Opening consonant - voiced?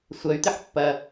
no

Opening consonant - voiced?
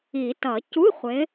no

